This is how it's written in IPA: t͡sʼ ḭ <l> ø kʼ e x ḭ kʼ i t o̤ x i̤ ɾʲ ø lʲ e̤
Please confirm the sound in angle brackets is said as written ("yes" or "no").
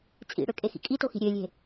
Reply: no